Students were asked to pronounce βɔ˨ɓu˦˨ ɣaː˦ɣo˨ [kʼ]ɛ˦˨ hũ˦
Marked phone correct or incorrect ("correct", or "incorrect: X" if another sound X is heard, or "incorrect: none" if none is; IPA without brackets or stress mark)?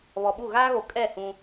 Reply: correct